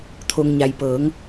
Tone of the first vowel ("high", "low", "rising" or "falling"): low